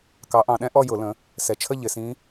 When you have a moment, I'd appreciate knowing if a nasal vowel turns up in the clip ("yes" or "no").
yes